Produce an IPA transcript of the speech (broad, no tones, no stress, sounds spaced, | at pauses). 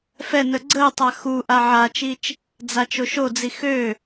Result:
f ɛ n ə ɡ͡ǀ əː tˤ a x u ʔ a ʕ a t͡ʃ i t͡ʃ | d͡z a t͡ʃ o ʃ o d͡z i x ø